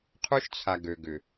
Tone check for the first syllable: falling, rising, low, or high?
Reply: high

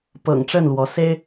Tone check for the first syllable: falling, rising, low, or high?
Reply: low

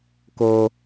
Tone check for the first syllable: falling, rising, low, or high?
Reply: high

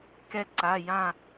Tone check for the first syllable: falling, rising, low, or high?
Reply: high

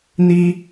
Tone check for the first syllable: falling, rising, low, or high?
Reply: high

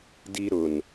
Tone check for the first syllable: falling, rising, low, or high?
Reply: high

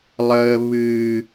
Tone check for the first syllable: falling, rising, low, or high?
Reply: low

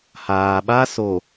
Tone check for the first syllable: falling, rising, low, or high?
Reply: low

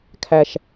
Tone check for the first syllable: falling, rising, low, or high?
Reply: low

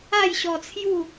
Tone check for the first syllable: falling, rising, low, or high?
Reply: falling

